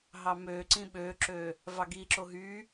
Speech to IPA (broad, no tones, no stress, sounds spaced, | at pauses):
ɦ ɑ m ø ǀ ĩ ɓ ø ǁ ø | v ɑ ɡ i ǁ o ɦ y